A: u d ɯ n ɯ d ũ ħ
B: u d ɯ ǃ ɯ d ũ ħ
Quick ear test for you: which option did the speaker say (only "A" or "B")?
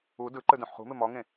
B